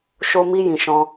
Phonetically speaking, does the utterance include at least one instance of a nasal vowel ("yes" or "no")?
yes